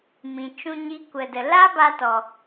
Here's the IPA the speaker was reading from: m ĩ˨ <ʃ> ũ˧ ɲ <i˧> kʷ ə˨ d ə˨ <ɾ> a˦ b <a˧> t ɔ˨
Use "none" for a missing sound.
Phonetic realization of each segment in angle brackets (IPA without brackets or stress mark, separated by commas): t͡ʃ, i˧, l, a˧